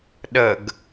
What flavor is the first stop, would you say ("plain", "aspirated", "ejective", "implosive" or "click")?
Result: implosive